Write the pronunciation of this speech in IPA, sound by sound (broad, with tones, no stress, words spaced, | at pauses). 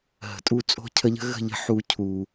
ɦə̤˨tʼu˦˨ t͡sʼo̤˦cʰə˧ʎə̤˦ ɣə̤˦˨ʎə̤˧ ħu˧ cʰu˨